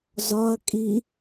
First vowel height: low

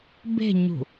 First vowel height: mid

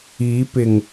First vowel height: high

